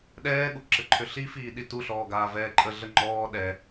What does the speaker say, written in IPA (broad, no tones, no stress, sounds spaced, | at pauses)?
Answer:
ɗ ɛː ɠ u ǁ ɘ ǃʰ ʏ ɬ i f iː ɗ i t u ɬ ɔː ɡ aː v ɛː ǃʼ ə ɮ ə ŋ͡ǃ ɔː ɗ ɛ